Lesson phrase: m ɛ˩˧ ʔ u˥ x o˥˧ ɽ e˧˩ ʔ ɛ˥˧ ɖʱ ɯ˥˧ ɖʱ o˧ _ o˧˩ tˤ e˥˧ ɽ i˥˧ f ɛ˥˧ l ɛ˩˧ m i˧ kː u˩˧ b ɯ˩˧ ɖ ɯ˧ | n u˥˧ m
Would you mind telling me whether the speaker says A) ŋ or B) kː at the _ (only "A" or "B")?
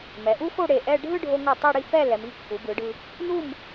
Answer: A